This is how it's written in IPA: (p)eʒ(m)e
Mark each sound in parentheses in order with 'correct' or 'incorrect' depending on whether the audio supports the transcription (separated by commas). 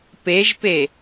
correct, incorrect